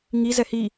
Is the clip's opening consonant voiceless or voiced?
voiced